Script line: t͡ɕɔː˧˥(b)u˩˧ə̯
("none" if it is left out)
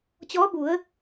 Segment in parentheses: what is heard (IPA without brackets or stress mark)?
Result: b